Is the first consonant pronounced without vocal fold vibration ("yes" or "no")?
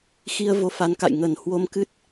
yes